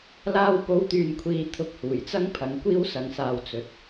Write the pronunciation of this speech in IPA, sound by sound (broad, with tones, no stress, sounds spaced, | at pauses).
l aː˧ w p o˨˧ w t̪ yː˨ n kʷʰ iː˨ t̪ʰ ʊ˧ k̚ h uː˨˩ j t͡s ɐ˥ ŋ pʰ ɐ˨˧ ŋ kʷ iː˥ w s ɐ˨˥ ŋ s aː˧ w t͡s ɵ˨˥ t̚